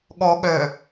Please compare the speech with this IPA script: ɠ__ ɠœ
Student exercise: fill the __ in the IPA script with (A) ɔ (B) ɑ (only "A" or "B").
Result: A